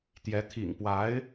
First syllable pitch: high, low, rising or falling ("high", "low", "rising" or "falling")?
rising